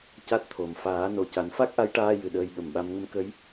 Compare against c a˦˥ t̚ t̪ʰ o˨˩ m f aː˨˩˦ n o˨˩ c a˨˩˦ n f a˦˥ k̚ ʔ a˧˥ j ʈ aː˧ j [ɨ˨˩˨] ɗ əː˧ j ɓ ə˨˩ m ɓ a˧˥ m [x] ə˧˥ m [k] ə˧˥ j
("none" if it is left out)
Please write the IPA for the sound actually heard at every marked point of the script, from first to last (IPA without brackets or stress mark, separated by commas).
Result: ɨ˨˩, ŋ, k